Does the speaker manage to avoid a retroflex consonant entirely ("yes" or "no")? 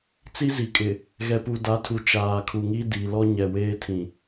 yes